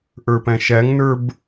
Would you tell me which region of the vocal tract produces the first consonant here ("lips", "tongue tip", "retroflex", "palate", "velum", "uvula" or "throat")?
throat